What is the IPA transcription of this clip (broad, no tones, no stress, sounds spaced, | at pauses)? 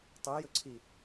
tˤ u j ɵ ǀʰ i